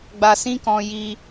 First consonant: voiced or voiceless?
voiced